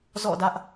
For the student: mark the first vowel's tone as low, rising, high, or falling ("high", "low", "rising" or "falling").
falling